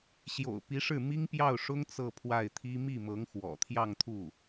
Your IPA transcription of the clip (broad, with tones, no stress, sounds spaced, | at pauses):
ɕ j o̰˨˩ ʊ̯ p i˧˥ ʂ ɻ̩˥˩ m i˥ ŋ p j ɑ˥˩ ʊ̯ ʂ ʊ˥ ŋ t͡s ɤ˥˧ pʰ w a˥˩ ɪ̯ t̪ʰ i˥ m i˥˩ m ɤ˧˥ ŋ x w ɔ̰˨˩ t̪ʰ j ɑ˥˧ ŋ t̪ʰ u˥˩